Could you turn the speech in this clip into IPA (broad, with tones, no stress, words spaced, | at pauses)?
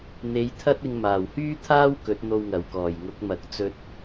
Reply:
n̪e˨˧j t̪ʰɐ˥t̚ ɪ˧ŋmaː˨˩w hyː˥t̪ʰaː˥w kɵ˨˥t̚n̪o˧wŋɐ˨˩wkɔː˨˩j ŋʊ˨˥k̚mɐ˨˥k̚ t͡sɵ˧t̚